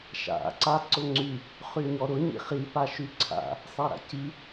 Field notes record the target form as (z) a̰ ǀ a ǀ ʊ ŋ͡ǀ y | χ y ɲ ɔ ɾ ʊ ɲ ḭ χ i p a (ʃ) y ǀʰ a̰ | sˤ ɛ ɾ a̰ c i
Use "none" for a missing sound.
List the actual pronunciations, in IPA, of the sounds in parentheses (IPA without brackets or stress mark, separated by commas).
ʃ, ʃ